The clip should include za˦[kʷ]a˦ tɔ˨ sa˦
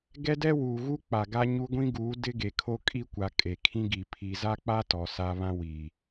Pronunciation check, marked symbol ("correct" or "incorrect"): incorrect